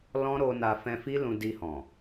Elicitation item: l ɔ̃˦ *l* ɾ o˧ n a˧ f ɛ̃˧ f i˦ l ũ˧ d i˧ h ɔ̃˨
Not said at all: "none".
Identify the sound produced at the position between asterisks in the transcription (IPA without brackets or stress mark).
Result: none